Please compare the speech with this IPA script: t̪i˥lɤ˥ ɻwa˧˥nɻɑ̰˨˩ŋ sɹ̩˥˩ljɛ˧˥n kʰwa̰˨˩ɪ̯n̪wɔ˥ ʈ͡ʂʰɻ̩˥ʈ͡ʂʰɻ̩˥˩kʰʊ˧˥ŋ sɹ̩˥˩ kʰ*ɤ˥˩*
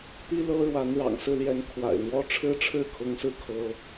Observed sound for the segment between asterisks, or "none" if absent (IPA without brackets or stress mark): ɤ˥